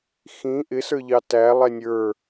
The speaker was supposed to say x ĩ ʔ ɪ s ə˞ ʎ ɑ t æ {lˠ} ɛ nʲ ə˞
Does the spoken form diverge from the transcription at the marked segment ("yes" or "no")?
no